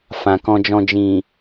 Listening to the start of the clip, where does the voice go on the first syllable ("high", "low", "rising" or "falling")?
low